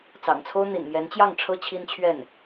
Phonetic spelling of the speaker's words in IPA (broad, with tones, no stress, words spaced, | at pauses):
t͡sɑ̰˨˩ŋt͡sʰo˥ʊ̯ n̪ḭ˨˩nmjɛ˧˥nt͡ɕjɑ˥˩ŋ ʈ͡ʂʰɤ˥t͡ɕʰi˥nt͡ɕʰɥɛ˥˩n